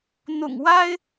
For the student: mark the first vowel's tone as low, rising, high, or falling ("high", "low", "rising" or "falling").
low